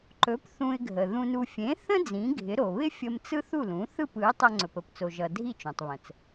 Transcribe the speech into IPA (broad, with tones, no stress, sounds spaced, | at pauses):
ǃ ɵ˩˥ p θ ũ˧ ɪ̯ ɡʱ ə˩ ð ũ˧ n u˧ fʲ ẽ˩˥ θ ə̃˥ d͡z ĩ˩˥ ɡʱ ɪ˩˥ ɾ o˩ β ɪ˥ fʲ ə˧ m t͡s ɯ˥ θ u˥˩ l ũ˩˥ θ ɯ˥˩ p ɯ˩˥ ɪ̯ tˤ ʌ˧ ŋ͡ǀ ɵ˩ p ə˩ p t͡s o˩ ʒ ʌ˩ dʱ i˥˩ t͡ʃ õ˩ tˤ β ə̃˩ t͡s